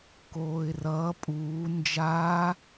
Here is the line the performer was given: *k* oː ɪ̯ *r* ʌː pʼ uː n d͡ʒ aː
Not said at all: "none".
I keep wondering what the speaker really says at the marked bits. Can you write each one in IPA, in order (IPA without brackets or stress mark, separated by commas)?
k, r